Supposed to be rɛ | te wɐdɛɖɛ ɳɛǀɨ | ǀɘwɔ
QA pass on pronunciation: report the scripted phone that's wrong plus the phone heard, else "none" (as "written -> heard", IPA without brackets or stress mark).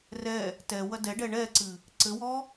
e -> ɛ